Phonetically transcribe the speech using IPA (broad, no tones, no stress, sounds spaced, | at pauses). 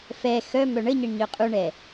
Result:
f ɛ x œ m œ ɳ ə ɲ ə ɳ ɲ œ qʼ u ɳ ɛ